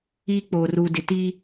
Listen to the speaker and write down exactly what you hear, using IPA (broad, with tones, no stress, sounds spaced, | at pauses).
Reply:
iː˦ k͡p oː˨ r uː˨ d ɪ˨ t iː˦